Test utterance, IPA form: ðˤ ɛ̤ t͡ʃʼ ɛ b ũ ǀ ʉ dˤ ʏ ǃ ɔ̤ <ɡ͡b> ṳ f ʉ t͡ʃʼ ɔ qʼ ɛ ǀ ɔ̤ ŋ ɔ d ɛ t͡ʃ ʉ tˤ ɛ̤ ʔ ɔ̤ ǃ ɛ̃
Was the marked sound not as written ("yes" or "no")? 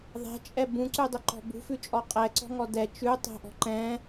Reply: yes